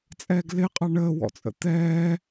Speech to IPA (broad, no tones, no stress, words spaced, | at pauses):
t͡sʼɛːɡlɪqʼɑ ɳəːwɔ̰t͡sʼə̰ t̪ɛː